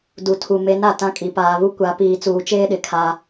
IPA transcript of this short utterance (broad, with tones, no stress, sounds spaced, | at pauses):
d u˨ tʰ u˨ m e˨˦ n a˨ t ã˦ kʼ i˨ p aː˨ β u˦ kʷ a˨˦ p iː˨ t͡s uː˨ t͡ʃ eː˦ ɗ ɪ˨ kʰ a˦